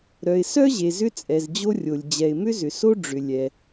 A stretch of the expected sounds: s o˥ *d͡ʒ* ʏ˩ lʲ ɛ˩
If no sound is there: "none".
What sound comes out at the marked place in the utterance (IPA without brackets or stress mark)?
ɖ͡ʐ